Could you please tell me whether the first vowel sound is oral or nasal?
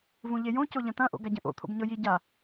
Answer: nasal